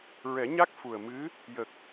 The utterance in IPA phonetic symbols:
ɹ ɛ˨˩˦ ɲ a˦˥ k̚ f u˨˩ ə̯ m ɨ˧˥ | j ə˨˩ k̚

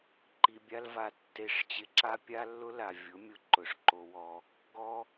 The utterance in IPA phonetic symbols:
ǃ i˧ bʲ a˦ l v a˧ tː e˧ ʂ t͡ɕ ɪ˧ ǁ a˦ pʲ a˦ lː ʊ˦ l a˨ vʲ ʊ˨˦ mʲ ʊ˧ ǃ ʊ˨ ʂ ǃ o˧ w ɔ˧ | ɡ ɔ˦

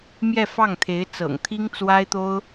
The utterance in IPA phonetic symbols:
m j ɛ˥˧ f ɑ˥˩ ŋ t̪ʰ e˧˥ ɪ̯ t͡s ɤ̰˨˩ ŋ t̪ʰ i˥ ŋ t͡s w a˥ ɪ̯ t̪ o˥ ʊ̯

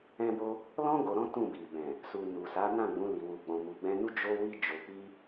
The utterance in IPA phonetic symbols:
ɛ̃˧ b o˧ | l ɔ̃˦ ɡ o˧ ɾ ɔ̃˦ t ũ˦˨ b i˨ b ɛ̃˨ | s u˨ n u˨ s a˨˦ n ã˦˨ ɡ͡b ũ˨˦ l i˧ w u˧ ɡ͡b ɔ̃˧ m u˨ ɡ͡b ɛ̃˧ n u˦ d͡ʒ o˧ w i˧ d͡ʒ o˨ k͡p i˧

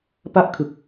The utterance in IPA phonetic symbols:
p a˥˩ ʔ kʰ ɯ˨˩ k̚

